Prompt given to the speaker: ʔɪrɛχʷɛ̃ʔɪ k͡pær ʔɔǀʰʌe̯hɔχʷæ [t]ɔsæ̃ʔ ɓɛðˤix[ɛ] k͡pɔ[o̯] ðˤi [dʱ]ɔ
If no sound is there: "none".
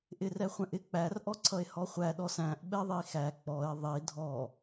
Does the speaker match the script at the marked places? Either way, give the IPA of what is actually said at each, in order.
ɗ, æ, e̯, dʱ

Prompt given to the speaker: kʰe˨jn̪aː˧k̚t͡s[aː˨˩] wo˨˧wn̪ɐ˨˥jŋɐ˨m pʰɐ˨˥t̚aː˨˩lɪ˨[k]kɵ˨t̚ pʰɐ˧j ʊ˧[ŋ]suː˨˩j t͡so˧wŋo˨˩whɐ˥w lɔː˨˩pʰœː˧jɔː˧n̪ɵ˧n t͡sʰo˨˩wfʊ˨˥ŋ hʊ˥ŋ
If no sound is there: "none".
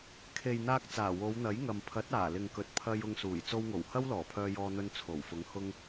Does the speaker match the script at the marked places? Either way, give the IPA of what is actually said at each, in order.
aː˨˩, ŋ, ŋ

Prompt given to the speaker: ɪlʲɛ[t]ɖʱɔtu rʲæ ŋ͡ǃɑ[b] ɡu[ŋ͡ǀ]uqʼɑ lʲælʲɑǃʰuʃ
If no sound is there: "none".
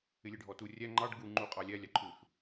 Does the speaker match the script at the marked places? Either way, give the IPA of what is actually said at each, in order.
none, ɖ, ŋ͡ǃ

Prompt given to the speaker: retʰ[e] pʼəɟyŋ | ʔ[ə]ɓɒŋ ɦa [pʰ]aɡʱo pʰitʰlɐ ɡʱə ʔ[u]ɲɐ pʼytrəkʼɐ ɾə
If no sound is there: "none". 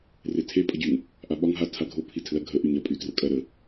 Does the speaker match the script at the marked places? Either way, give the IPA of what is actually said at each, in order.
e, a, tʰ, y

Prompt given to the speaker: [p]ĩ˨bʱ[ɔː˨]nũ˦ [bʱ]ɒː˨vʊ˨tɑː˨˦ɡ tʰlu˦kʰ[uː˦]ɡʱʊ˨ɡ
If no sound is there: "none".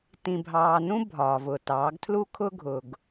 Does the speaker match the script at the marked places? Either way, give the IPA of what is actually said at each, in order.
t, ɑː˨, bʱ, ʊː˦

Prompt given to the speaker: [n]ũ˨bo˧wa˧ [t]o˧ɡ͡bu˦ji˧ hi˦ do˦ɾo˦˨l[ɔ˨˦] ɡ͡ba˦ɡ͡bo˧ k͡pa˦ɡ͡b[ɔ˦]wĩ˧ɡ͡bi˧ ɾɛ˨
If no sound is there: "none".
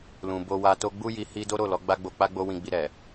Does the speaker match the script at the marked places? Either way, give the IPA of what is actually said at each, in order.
l, t, ɔ˨˦, o˦

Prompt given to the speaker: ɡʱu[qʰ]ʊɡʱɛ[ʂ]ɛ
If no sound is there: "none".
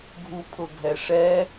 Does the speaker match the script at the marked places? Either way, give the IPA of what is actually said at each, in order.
pʰ, ʂ

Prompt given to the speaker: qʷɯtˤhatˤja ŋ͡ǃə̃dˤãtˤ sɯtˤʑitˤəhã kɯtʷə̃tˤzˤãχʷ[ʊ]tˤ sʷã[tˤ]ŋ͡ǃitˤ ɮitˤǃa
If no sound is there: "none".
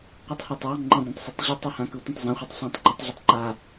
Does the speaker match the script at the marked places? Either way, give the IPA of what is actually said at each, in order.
ɯ, tˤ

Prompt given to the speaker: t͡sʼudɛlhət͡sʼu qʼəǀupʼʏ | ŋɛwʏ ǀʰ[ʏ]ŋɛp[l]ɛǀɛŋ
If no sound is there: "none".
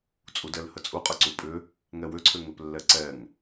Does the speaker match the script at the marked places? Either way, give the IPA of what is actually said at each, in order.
ʏ, lː

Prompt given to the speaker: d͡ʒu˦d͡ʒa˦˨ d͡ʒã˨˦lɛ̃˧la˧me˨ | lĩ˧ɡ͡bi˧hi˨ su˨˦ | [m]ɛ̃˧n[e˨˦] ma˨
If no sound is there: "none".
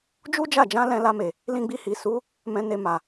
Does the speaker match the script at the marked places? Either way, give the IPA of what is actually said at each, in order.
m, e˧

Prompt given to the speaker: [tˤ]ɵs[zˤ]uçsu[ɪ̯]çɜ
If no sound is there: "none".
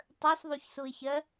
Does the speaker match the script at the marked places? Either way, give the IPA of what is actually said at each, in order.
tˤ, ðˤ, ɪ̯

